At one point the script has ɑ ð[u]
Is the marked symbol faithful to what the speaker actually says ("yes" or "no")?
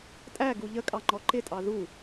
yes